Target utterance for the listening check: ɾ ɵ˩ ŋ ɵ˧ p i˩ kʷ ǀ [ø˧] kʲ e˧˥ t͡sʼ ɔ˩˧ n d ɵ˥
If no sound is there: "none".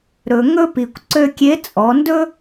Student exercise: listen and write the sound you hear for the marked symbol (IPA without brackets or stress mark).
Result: ø˧